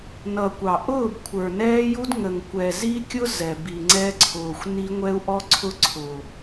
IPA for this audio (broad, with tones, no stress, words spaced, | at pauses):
nʌ˨kʷɑ˨ ʔʊː˦˨bkʷʰə˞˨nɛː˦ju˦d ŋə˨ŋkʷɛ˨ zi˦kʲʊ˦ zɛ˨bi˨ŋ͡ǀɛ˦ǀʰʊː˨xʷ ni˦ ŋʷɛ˦u̯ʔɔ˦ǀʰʊ˦ ǀʰʊ˨